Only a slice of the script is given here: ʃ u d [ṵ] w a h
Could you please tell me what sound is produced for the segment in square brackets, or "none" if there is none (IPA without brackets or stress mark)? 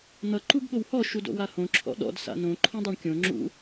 o̰